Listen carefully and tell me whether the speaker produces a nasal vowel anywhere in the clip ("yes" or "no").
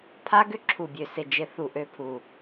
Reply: no